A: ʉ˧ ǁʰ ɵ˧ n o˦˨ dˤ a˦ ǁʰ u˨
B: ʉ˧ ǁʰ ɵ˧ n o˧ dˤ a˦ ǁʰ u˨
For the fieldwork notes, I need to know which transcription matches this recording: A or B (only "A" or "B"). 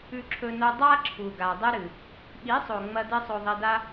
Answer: B